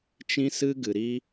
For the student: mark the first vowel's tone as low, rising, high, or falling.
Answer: high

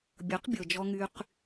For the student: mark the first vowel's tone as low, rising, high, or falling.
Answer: rising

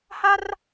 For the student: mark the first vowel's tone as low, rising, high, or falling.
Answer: high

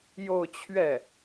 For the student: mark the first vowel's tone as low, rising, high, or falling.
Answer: falling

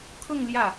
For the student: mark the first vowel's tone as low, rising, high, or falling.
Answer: falling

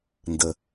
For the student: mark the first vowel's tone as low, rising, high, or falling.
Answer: low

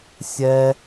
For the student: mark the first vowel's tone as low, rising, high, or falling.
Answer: high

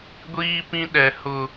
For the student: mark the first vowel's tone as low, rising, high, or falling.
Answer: high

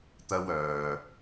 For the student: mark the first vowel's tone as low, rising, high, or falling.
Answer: high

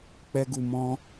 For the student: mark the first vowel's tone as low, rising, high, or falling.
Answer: high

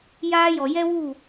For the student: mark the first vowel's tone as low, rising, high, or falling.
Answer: high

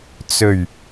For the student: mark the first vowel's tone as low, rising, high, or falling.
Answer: low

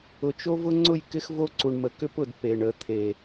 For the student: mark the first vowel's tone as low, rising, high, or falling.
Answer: low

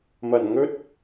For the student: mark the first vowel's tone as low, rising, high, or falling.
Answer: low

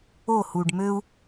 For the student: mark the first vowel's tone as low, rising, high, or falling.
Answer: falling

